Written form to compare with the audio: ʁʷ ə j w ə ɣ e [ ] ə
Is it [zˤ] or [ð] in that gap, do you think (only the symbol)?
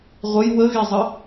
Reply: zˤ